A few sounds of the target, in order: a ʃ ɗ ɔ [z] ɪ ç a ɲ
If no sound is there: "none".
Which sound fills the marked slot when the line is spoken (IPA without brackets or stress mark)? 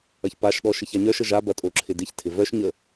ʃ